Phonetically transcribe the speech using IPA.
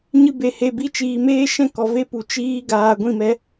ɲ ɨ˧ b e˨ h e˨ b i˧ t͡ʃ iː˨ m eː˦ ʃ ɛ̃˦˨ k ɔ˨ v e˦ p u˨ t͡ʃ iː˦ ɡ aː˧ ɡʷ ĩ˦˨ m ɛ˦

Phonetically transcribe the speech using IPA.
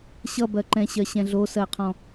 ɕ ʌ b ɜ ǃ ɛ̃ ɕ ɜ ɕ ɛ̃ ɮ o s ɜ qʰ ɔ̃

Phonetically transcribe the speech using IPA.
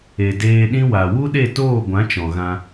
e˨ d eː˧ ɗ ĩ˦ w a˨ w u˦ ɗ e˦˨ t oː˦˨ ɡʷ ã˨˦ t͡ʃ ɔ̃˨ ɣ ã˧

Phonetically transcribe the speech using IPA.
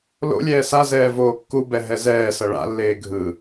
l o̰ lʲ ɛː s a z ɛː v oː kː u b ɛ ɦ ɛ z ɛː s ʌ ɭ a̰ lː eː ɡʱ ɯ

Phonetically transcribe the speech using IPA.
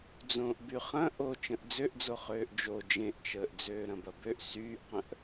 d͡z õː ʔ b y χ ɐ̃ ʔ o t͡ʃ ə̃ ʔ d͡z ø ʔ d͡z o χ øː ʔ d͡ʒ o d͡ʒ ẽ ʔ t͡ʃ əː ʔ d͡z øː ɾ ɐ̃ b ɐ b ø ʔ s yː ʔ q ə̃ ʔ

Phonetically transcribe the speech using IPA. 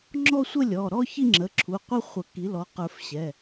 ŋ͡ǁ ɔ˥˧ sʷ ə˥˧ lʲ ɔ˩˧˩ ɾ ɔ˥˧ ç i˥˧ ŋ͡ǁ ə˩˧˩ ǁʰ u˩˧˩ qʷ ə˥˧ χʷ ə˨˩˦ k i˩˥ l ɔ˩˥ q ə˞˨˩˦ f ɕ ɛ˩˧˩

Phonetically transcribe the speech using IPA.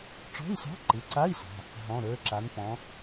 ʈ͡ʂ ɔ̤˧˥˧ i̯ ɬ ɑ̤˧˥˧ ǃ ɯ˩˧˩ ǀ a˧˥˧ i̯ ɬ a̤˩˧˩ | ɦ ɔ̃˩˧˩ ɾ ə˞˩˧˩ ǁ a˩˧ n p ɔ̃˩˧

